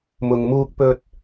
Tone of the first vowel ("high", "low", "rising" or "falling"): low